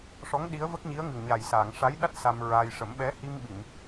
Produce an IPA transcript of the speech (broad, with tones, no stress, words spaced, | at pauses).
ʂɔ˧˥ŋ ɗi˧˥ə̯və˦˥k̚ɲi˧˥ə̯ ŋɨ˨˩ŋɲaː˨˩jsaː˨˩˨ŋ ʂa˧˥jɗa˦˥t̚ sa˧mɹa˧j ʂə˨˩˦mɓɛ˧˥ hi˧m ɓi˨˩˨m